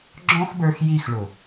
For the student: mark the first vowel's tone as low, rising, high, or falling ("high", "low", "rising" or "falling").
high